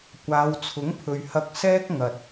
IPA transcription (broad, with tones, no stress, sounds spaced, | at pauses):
kʷ aː˨˧ w t͡sʰ ʊ˨˥ ŋ pʰ ɵ˨ ɥ h ɐ˧ k̚ s ɛː˥ k̚ ŋ ɐ˨ t̚